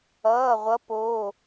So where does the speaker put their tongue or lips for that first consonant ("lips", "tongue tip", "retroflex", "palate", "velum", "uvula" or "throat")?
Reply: uvula